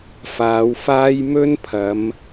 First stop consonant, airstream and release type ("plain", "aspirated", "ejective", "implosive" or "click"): aspirated